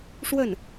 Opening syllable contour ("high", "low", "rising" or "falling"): falling